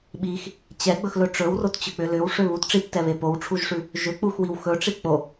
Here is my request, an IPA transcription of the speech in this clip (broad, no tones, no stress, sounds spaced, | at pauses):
ɓ i x | t͡ɕ ɛ ɡ͡b ɵ x l ɵ ʈ͡ʂ ɵ w r o t t͡ɕ ʏ k͡p ʏ l ʏ w ʂ ʏ β u t ʈ͡ʂ i p t ɛ β e p o w ʈ͡ʂʰ u ʒ ʂ ʉ | ʒ ʏ k͡p u x w i w x ɵ ʈ͡ʂ i k͡p o